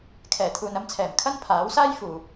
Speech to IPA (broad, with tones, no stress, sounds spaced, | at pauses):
kʰ ɛː˨˩ t̪ʰ uː˨ n ɐ˧ m t͡sʰ ɛː˨˩ m kʰ ɐ˥ n pʰ aː˨˥ w s aː˥ j f uː˨